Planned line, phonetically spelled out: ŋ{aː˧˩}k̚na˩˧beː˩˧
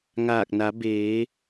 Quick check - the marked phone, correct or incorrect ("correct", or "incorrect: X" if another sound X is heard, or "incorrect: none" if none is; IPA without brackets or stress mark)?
correct